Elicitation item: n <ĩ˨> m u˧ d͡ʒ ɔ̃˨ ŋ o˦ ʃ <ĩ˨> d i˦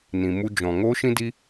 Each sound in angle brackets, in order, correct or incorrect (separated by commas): correct, incorrect